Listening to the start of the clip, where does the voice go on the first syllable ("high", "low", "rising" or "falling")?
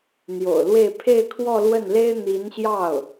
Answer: low